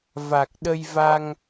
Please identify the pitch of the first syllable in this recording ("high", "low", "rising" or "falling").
low